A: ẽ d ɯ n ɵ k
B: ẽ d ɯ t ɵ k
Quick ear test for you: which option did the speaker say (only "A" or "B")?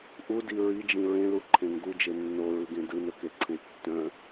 A